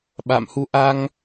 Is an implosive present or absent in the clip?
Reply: present